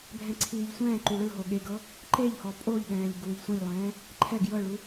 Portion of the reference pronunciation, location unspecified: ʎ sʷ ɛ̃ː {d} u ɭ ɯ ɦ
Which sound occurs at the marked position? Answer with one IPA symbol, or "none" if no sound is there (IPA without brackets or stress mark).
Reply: ǃ